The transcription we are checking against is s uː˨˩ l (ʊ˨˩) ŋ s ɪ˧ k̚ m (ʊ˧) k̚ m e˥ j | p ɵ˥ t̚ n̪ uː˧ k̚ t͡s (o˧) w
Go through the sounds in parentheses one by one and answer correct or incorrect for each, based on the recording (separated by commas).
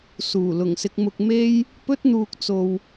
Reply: correct, correct, correct